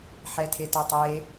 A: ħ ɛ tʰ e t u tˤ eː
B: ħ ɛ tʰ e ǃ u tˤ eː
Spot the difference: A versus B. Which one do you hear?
A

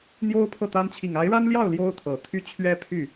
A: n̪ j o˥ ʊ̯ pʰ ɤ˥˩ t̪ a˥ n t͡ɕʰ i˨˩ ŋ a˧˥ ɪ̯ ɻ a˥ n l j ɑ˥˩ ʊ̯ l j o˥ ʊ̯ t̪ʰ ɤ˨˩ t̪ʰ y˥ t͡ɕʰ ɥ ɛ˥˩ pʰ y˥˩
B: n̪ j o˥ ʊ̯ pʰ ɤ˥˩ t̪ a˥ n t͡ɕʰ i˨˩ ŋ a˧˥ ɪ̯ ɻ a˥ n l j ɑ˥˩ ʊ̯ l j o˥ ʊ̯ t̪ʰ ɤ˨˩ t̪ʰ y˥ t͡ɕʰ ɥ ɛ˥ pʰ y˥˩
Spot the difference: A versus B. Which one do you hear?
B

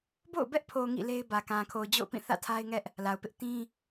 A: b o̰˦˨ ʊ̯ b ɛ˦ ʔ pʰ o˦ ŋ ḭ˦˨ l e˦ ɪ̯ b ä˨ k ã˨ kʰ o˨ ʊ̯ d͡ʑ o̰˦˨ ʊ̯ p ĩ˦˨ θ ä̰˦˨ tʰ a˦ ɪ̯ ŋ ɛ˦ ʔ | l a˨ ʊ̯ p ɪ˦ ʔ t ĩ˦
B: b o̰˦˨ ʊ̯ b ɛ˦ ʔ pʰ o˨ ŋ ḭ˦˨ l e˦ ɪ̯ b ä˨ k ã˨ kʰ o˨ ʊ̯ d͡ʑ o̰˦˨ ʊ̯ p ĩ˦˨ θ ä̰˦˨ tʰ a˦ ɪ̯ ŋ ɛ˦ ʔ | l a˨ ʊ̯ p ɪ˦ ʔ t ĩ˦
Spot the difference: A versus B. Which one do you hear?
B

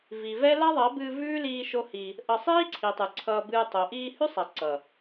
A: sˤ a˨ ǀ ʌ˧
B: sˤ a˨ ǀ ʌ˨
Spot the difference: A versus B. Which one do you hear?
B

